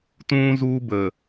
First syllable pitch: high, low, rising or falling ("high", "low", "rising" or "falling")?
high